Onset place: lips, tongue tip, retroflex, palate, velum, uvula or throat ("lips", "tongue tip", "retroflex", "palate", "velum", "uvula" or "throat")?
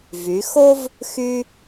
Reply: lips